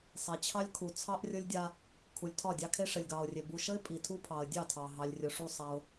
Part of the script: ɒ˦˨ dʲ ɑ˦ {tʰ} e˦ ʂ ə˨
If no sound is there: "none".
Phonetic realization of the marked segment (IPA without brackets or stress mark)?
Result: kʰ